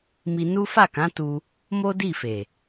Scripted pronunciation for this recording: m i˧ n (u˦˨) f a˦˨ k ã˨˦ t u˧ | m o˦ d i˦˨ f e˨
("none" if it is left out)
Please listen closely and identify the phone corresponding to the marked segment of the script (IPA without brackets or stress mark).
u˦